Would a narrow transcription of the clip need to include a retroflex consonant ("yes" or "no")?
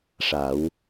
yes